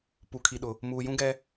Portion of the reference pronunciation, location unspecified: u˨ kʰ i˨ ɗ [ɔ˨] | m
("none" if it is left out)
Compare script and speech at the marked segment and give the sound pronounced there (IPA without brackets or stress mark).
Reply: ʊ˨